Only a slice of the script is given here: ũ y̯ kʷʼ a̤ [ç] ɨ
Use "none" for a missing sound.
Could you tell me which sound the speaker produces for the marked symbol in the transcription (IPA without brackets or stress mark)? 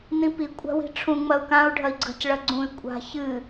ç